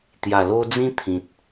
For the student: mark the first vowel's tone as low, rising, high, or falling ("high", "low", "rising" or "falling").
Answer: low